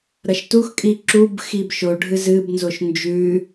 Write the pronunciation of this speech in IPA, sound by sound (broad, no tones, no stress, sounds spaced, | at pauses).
ɾ ɐ ʃ t u x kʼ i ǁ u b x i b ʃ o ɖʱ ɨ z ɨ b n z o ʃ n d͡ʒ ʉ